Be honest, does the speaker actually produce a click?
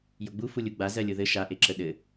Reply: yes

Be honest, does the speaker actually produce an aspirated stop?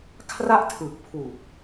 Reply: yes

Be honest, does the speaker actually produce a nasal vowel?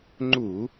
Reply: no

